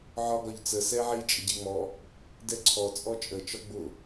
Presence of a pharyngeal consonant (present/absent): present